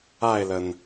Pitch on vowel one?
falling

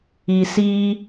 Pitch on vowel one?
low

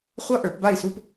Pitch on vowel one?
high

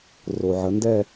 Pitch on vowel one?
low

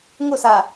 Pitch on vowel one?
falling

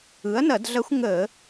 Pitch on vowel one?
rising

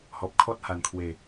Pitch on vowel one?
low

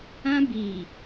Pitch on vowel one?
high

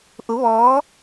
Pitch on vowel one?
rising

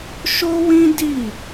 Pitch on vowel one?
high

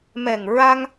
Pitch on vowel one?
low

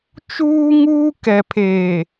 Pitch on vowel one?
high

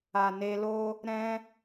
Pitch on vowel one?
low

